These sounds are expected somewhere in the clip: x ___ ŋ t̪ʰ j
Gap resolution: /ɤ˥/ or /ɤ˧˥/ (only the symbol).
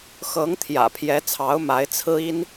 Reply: ɤ˧˥